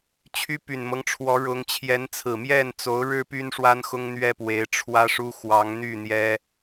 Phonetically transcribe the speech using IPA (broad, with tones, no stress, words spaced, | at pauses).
t͡ɕʰy˥py˨˩nmɤ˦ŋʈ͡ʂʰwɔ˧˥ ɻʊ˧˥ŋ t͡ɕʰjɛ˧˥nt͡sʰɹ̩˨˩ mjɛ˥˩nt͡so˧˥ʊ̯ɻɻ̩˥ py˥nʂwa˥nxʊ˥ŋ n̪ɥɛ˥pwe˧˥ɪ̯ ʈ͡ʂʰwä˥ʂu˥ xwɑ˧˥ŋn̪y˥˩ n̪jɛ˥